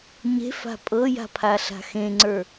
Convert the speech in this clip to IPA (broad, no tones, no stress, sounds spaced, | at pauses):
ɲ e̤ f a̤ pʼ ɤ j a̤ pʰ a ɬ a̤ x ẽ ŋ͡ǀ ə˞